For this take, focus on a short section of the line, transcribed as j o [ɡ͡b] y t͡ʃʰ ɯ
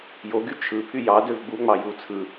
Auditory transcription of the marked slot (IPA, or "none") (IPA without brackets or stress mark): ɡ